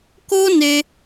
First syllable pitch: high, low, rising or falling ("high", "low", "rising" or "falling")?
high